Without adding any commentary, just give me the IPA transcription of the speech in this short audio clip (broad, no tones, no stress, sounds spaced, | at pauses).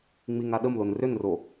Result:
ŋ͡m i ŋ a ɗ ə m l o n r ʏ n r o